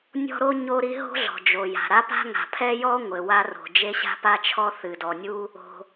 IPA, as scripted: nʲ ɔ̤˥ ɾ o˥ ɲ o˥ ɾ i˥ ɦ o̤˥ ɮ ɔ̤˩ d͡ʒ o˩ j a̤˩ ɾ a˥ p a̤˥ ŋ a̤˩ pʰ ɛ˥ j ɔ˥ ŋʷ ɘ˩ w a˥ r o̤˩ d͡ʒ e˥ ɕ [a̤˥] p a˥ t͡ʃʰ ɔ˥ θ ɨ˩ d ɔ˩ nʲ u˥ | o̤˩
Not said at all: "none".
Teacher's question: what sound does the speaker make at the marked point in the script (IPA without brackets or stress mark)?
a̤˥